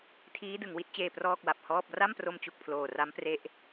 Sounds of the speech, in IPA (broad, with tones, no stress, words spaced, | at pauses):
tʰiː˦˥dɯ˩˦ŋ wi˦˥t̚t͡ɕeː˧ prɔː˥˩k̚wa˨˩p̚hɔː˥˩p̚ ra˥˩mpro˧mt͡ɕu˨˩k̚ pʰloː˨˩ra˦˥m pre˦˥ʔ